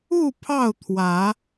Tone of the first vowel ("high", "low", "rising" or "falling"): falling